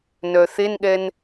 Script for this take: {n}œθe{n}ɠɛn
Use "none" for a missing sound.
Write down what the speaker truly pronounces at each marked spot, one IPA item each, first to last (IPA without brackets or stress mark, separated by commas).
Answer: n, n